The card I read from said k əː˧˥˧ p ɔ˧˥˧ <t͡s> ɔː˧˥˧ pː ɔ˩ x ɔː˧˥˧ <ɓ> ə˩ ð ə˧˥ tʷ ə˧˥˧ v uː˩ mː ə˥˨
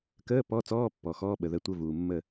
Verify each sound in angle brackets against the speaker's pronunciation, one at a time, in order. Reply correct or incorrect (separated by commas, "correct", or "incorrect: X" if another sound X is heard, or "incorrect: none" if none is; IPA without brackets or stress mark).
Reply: correct, correct